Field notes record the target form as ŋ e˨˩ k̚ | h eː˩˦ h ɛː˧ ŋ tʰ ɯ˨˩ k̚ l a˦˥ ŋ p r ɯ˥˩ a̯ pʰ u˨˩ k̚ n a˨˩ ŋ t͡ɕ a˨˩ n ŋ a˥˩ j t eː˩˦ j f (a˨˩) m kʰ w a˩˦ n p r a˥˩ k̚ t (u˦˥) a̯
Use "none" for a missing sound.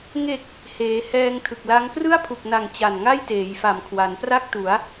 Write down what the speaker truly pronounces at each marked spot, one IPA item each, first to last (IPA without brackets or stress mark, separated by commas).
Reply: a˨˩, u˩˦